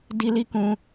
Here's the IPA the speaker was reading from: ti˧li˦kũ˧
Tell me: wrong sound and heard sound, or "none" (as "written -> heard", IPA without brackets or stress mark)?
t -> d